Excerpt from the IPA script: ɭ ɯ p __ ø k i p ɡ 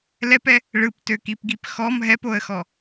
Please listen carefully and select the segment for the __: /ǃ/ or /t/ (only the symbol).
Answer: t